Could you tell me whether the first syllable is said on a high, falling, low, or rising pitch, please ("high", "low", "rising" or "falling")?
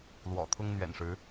low